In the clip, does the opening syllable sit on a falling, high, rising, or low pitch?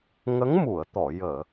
rising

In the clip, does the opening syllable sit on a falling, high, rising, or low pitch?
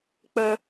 high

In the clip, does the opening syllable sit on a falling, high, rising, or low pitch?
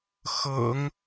low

